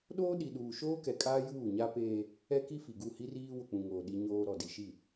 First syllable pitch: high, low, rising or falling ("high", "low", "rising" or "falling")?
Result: high